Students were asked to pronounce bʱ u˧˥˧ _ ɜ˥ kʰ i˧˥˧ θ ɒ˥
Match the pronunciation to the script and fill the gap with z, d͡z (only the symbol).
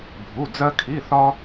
d͡z